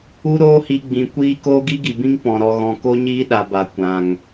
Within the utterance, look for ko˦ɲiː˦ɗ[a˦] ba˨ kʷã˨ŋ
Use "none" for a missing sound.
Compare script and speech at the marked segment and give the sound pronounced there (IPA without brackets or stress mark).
a˨